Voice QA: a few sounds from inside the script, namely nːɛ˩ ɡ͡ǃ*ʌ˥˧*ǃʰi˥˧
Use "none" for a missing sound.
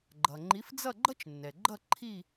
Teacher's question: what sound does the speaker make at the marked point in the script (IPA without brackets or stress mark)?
ʌ˥˧